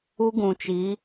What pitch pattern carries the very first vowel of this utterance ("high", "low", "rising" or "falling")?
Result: high